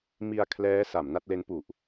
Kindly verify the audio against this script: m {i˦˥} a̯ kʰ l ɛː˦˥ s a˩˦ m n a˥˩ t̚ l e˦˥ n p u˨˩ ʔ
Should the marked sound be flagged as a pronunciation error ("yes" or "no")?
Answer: yes